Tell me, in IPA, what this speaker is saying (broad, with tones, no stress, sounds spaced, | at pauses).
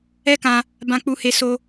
ɛ˦ k ã˧ | b ã˧ k͡p u˧ h e˧ s o˧